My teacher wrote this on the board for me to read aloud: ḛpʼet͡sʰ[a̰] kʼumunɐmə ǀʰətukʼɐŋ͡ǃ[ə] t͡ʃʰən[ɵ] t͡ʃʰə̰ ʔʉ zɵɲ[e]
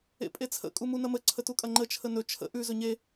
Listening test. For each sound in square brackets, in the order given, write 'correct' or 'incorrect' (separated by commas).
incorrect, correct, correct, correct